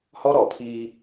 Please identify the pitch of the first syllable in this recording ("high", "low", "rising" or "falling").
high